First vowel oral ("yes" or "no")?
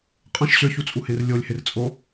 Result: no